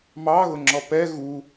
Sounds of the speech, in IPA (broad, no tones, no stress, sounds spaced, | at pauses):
m ɑ ɣ ʊ ŋ͡ǁ ɔ p ɛ ɣ u